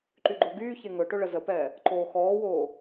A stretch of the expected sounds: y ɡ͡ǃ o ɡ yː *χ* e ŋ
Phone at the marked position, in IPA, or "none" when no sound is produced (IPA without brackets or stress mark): ç